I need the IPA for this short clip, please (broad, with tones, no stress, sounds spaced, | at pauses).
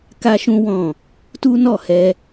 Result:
k a˦ ʃ ũ˦ w ɔ̃˦˨ | t u˦ n ɔ˦˨ h ɛ˧